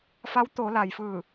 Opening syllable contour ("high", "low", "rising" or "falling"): rising